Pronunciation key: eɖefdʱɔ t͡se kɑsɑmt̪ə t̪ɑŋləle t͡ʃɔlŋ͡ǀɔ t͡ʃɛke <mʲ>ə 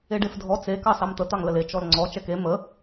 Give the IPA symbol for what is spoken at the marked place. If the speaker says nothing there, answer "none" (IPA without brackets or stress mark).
m